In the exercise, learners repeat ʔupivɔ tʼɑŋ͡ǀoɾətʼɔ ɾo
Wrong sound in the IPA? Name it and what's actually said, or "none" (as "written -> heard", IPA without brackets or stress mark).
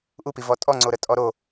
ɑ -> ɔ